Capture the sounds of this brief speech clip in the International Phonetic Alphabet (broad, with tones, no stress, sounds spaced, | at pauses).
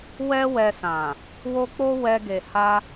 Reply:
w ɛ˦ w ɛ˧ s ã˨ | w o˦ k͡p o˦ w ɛ˧ ɡ e˨ h a˧